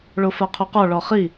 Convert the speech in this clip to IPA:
ɭ o f a qʰ o q ɔ ɭ ɔ χ i

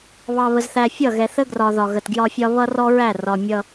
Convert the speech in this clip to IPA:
β ɑ˨ β ə˨ z θ æ˨ fʲ ʌ˦˨ ɣ ɛ˨ θ ə˦ ɡ r ɒ˨ ð ɒ˨ ɣ ə˨ t ɡ j ɒ˦ fʲ ɒ˦ β ʌ˦ r ɔ˦ ɹ æ˦˨ r ɒ˨ mʲ ʌ˦

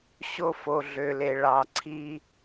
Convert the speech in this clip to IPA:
ɕ o˦ f o˨ ɮ ø˨ l e˨ ɭ ɑ˨ ǀʰ i˦

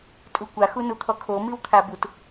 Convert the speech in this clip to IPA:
tʼ u kʷ a x u n u t̪ʰ ɔ kʰ o m i w t̪ʰ a b u t

